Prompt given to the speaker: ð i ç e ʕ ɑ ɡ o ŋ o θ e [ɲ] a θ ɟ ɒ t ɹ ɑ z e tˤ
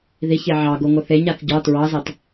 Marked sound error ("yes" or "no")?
no